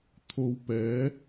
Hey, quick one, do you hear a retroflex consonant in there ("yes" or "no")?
no